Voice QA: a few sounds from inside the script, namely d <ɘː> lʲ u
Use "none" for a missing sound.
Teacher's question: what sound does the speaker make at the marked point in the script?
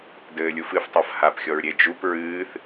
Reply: ɘː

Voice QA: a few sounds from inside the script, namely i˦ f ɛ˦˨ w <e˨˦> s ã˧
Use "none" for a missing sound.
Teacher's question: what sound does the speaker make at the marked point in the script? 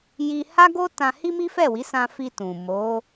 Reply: i˨˦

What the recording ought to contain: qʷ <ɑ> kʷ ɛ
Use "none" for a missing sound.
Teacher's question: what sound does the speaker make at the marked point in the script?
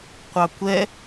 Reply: ɑ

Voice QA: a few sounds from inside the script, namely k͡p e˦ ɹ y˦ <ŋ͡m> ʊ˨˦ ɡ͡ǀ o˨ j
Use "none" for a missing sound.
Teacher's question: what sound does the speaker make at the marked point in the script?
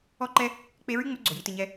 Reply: ŋ͡m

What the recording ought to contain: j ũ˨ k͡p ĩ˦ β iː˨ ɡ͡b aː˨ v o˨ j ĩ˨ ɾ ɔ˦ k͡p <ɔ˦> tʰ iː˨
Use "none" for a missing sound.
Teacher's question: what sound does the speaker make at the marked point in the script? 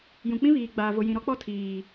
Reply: ɔ˦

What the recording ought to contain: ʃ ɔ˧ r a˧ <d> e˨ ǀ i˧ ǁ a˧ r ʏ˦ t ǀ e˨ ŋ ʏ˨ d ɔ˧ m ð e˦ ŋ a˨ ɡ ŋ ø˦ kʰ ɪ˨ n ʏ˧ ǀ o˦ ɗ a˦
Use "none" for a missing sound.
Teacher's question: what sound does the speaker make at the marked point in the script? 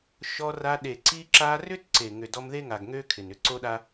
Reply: ɗ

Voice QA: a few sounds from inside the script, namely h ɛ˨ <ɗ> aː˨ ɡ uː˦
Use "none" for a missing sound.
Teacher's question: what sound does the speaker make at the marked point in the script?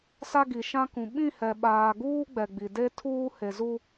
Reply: ɓ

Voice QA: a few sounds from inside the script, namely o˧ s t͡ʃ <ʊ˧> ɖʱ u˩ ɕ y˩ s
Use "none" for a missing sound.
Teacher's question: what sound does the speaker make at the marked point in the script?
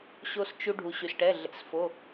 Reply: u˧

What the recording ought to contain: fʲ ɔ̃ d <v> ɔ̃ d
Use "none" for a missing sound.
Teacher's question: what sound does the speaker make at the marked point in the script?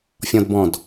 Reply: b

